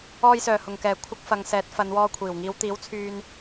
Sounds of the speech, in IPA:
ɔː˧ j s œː˨˩ h ʊ˨˩ ŋ k ɛː˨˩ kʷʰ ɪ˥ k̚ f ɐ˨˧ ŋ s ɛː˨˥ t̚ f ɐ˨˧ n w ɔː˧ kʷʰ iː˨˩ w ŋ iː˨˧ w t̪ iː˨˥ w t͡sʰ yː˧ n

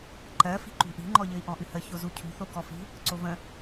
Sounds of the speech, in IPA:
ǃ ɜ f i̤ ǃ ṳ ʔ i̤ ŋ͡ǃ ɔ ʎ ɘ i̯ ʔ ɔ̃ ʔ ɨ h ə ç o z u cʰ ṳ θ o k ɔ f i̤ | ǀ o v ə̃

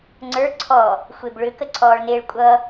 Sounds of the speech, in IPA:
ŋ͡ǀ ə˞ ǀʰ ɔ | xʷ e b ɭ ʏ k ə ǀʰ ɔː ɭ n e ɭ kʷʼ ʌ

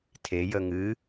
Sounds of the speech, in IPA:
tʰ e j ə ŋ ɨ

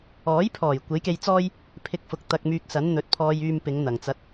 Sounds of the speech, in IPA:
ɔː˨˥ j pʰ ɔː˨˩ j kʷ e˨˥ j k e˧ j t͡s ɔː˥ j | pʰ ɪ˧ k̚ f ʊ˨˥ k̚ t̪ ɐ˧ k̚ m yː˧ k̚ s ɐ˨˥ n n̪ ɵ˨˥ t̚ pʰ ɔː˧ j yː˧ m p ɪ˨˧ ŋ n̪ ɐ˨˩ ŋ t͡s ɐ˧ t̚

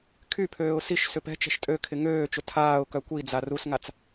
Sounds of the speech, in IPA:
kʰ y pʰ øː ʊ̯ s i ʃ s ʏ p ɛ̤ t͡ʃ ɛ̤ ʃ tʼ ø kʰ ɪ ŋ øː t͡ʃ ʊ tʰ aː ʊ̯ k œ kʷ i d͡z a r u s ŋ a t͡s

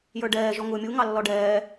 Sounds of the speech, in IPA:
j ə˞ ɖ ɛː ʒ ɔ ŋ ʊː mʲ u ŋ ɑ lː ɔ ɖ ɛː

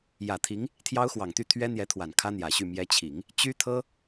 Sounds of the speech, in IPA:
j ä˨˩ t̪ʰ i˧˥ ŋ | t̪ʰ j ɑ˥ ʊ̯ x w ɑ˨˩ ŋ t̪ y˥˩ t̪ʰ ɥ ɛ˥ n̪ j ɛ˧˥ t̪ʰ w a˨˩ n kʰ ä˥ n̪ j ä˨˩ ɕ y˥˩ m j ɛ˧˥ t͡ɕʰ i˨˩˦ ŋ | t͡ɕ y˥ t̪ʰ ɤ˥

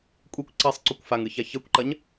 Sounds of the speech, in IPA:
kʷʼ i kʷ ǀ e sˤ ǀ o kʷ f a ŋ ɨ ç a ç ɛ kʷ ǃ ɐ ɲ

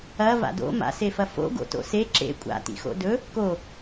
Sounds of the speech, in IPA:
ɐ v a̰ d o̰ m a̰ s e f ɐ f o̰ ɡ o̰ t o̰ s e ǁ ḛ kʷʼ a̰ t ḭ x o̰ d ɵ | k o

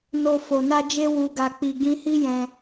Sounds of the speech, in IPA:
n o˨ f o˨ n a˧ d͡ʒ e˧ w u˨ ɡ a˨ k͡p i˨ ɡ ĩ˧ h i˦ j ɛ̃˧

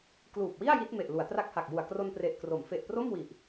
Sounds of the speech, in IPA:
k l uː˨˩ p̚ w i˥˩ a̯ j i˦˥ t̚ m e˨˩ ʔ l u˩˦ a̯ t r a˦˥ k̚ h a˨˩ k̚ j u˨˩ a̯ k r o˧ n p r e˨˩ ʔ k r o˩˦ m f e˨˩ ʔ p r o˥˩ m w i˨˩ ʔ

